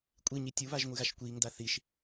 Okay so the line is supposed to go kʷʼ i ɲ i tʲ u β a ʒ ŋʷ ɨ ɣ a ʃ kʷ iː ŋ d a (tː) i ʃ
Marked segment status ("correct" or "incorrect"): incorrect